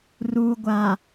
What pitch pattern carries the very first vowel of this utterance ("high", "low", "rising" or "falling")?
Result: low